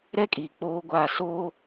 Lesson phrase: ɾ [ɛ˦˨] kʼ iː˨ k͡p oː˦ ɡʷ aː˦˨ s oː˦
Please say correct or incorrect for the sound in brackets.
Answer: incorrect: ɛ˦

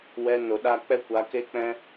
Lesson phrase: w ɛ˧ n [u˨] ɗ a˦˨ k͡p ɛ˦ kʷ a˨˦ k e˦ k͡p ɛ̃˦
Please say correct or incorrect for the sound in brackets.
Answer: incorrect: o˨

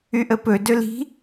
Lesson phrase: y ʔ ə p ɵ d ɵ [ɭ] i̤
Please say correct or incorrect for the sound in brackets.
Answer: incorrect: l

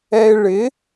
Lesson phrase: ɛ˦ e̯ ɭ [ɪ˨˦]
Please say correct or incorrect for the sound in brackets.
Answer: correct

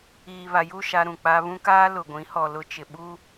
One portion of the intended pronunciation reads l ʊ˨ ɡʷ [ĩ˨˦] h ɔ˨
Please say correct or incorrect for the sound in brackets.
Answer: correct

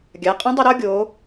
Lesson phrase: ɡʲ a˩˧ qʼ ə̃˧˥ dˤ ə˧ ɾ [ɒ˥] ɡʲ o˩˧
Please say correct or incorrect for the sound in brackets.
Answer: correct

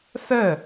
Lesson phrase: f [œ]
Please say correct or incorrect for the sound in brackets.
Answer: correct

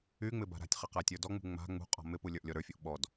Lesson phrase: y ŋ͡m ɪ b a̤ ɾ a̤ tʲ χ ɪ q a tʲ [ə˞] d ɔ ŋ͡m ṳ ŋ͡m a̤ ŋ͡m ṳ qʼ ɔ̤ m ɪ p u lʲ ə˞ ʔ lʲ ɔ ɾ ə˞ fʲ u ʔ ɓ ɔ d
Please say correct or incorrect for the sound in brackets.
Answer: correct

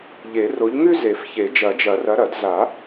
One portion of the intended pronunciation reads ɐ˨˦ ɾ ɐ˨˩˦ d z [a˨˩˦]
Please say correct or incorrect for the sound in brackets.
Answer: correct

